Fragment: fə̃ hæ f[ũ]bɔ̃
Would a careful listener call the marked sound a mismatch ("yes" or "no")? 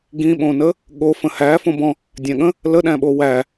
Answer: yes